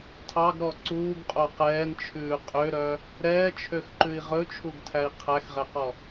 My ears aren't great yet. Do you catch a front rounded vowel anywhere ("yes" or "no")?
yes